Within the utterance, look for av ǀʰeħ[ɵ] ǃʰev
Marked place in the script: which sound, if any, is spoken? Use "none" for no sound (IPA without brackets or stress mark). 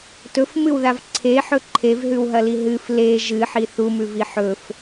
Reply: ɵ